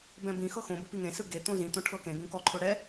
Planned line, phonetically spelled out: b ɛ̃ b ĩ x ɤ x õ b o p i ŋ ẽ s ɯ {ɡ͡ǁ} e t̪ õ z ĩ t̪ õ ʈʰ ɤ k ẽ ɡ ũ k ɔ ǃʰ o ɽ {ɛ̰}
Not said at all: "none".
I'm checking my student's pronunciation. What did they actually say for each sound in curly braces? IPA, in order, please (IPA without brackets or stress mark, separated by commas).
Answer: ɡ, ɛ